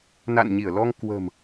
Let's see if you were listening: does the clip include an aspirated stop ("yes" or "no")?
no